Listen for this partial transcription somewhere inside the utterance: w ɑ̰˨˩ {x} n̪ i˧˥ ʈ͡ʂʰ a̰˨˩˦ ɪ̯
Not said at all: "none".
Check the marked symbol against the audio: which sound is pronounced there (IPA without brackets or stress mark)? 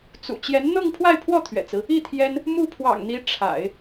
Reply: ŋ